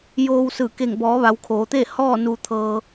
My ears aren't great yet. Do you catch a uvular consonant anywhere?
no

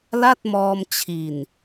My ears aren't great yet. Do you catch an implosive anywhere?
no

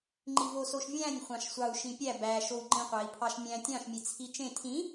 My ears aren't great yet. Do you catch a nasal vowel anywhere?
yes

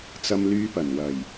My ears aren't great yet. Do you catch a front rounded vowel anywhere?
yes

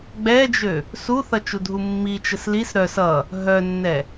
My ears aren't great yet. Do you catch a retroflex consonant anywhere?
no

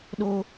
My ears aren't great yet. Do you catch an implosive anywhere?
yes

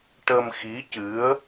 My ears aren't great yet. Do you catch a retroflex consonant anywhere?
yes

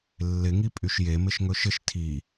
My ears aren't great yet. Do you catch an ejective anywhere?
yes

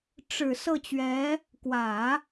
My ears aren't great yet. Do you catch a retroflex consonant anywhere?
yes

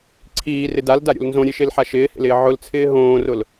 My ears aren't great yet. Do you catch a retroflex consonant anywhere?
no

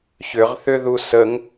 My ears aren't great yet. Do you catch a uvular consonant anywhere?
yes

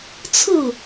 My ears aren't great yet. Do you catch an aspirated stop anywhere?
yes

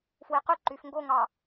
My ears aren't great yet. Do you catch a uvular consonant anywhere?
yes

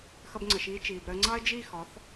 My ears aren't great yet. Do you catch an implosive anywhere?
no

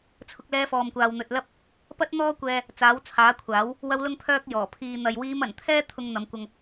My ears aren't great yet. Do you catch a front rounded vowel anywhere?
yes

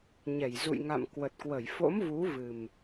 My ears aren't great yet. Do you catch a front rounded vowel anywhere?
no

